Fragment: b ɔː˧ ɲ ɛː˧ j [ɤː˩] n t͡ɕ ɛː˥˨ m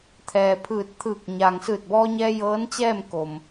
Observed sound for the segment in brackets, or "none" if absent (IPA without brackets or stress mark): ɤː˧˥